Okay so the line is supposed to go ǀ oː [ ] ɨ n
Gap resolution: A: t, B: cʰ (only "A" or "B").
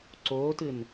A